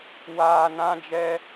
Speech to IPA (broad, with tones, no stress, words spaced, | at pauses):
waː˨ nã˦d͡ʒɛ˦